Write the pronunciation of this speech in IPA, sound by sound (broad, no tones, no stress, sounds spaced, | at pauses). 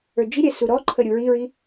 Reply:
ə˞ d͡ʒ i ɾʲ ɛ s u ɾ ɔ ǃʰ ə ɾʲ u ɹ i ɹ i